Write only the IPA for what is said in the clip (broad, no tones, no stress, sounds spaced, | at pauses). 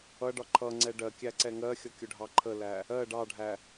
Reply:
ʌ ɖ ɒ ǃʰ ʌ ŋ͡ǀ ɛ ɖ ɜ kʲ æ ǀ ɛ ŋ ɜ xʲ ʌ kʲ ʊ ɖʱ ɑ ǃʰ ə l æ | ɜ ɖ ɑ ɖʱ æ